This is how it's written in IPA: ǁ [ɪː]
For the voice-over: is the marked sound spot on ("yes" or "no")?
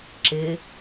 yes